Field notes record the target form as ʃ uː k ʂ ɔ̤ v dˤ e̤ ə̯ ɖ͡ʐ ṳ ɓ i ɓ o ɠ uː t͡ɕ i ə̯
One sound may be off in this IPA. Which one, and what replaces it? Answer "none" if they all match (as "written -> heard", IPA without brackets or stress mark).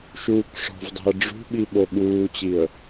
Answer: none